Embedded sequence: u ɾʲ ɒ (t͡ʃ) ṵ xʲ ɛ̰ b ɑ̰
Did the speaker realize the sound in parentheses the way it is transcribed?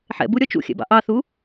yes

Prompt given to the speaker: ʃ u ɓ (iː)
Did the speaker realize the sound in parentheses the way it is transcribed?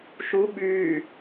no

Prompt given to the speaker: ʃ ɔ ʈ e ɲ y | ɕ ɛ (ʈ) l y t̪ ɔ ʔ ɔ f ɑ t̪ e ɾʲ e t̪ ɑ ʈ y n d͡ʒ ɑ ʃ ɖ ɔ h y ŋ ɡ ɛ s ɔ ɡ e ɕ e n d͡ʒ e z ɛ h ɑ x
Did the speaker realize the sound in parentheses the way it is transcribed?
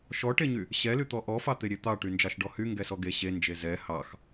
no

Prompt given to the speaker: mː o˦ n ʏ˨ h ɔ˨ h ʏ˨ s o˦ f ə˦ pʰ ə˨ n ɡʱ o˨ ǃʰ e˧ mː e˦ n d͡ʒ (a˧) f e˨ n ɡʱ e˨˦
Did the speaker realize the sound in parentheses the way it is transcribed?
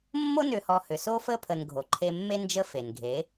no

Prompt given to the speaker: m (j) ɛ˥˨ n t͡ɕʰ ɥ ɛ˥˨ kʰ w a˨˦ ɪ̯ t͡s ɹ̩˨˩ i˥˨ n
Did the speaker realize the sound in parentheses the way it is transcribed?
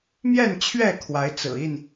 yes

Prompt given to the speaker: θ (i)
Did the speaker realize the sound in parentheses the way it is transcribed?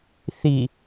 yes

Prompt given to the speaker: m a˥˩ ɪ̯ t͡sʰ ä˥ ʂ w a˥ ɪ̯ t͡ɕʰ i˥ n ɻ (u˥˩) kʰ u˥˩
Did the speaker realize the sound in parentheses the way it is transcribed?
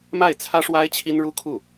no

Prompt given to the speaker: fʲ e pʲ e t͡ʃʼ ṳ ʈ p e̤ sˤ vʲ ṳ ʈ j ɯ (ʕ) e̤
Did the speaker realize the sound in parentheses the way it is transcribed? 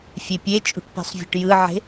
yes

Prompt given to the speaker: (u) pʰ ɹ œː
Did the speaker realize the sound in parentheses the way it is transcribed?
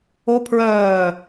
no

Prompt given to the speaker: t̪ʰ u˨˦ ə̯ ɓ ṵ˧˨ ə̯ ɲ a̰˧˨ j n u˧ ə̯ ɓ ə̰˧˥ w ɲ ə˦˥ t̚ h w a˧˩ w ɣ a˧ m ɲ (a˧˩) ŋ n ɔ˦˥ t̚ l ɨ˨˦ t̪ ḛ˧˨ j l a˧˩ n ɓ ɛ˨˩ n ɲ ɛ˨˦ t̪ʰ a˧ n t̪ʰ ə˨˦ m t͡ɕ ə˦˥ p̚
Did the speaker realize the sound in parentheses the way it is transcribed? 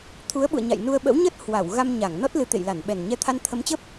yes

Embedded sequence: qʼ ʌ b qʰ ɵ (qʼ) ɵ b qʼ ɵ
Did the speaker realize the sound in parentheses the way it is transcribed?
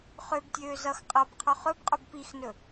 no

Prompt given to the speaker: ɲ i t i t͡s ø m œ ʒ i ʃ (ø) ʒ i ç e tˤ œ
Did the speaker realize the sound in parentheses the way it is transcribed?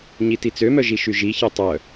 no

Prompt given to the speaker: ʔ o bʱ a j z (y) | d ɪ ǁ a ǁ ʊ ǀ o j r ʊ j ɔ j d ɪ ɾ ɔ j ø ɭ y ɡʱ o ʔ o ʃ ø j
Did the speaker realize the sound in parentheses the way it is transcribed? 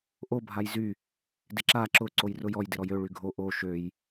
yes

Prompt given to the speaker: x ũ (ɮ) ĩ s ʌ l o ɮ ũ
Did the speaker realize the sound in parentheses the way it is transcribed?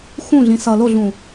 yes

